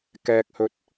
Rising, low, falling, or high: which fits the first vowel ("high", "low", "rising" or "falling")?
low